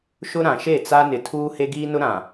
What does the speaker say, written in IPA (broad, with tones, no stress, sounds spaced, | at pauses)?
ʃ ʊ˦ ɾ ã˨ ʃ e˦˨ t͡s a˦ n ɪ˨ tʰ uː˦ h e˦ ɡ iː˦ n ʊ˦ ɾ ã˨